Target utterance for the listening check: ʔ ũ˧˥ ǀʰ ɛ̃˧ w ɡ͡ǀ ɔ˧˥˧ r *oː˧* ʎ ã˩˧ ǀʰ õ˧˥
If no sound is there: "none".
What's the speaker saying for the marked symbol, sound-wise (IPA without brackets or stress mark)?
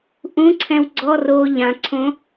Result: oː˧